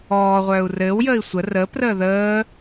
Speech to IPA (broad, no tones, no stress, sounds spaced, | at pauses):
ɔː ʁʷ œː u̯ r ɘː w j əː i̯ sʷ ə r əː p r əː ð əː